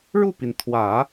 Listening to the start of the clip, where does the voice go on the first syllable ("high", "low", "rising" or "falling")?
falling